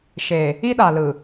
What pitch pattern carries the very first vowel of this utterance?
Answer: low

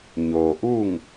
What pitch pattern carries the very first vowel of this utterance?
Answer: low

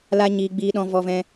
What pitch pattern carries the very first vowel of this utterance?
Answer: high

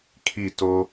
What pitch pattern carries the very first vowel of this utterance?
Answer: falling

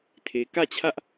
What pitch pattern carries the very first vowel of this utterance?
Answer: low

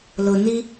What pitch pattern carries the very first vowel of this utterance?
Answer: low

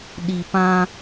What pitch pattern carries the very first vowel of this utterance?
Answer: low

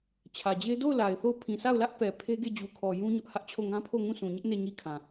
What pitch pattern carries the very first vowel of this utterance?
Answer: low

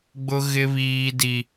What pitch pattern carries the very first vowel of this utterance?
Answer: high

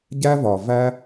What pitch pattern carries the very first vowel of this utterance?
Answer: high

